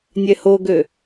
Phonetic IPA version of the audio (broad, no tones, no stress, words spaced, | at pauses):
nʲɛhoɡø